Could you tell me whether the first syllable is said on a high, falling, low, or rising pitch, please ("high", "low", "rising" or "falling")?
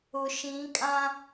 low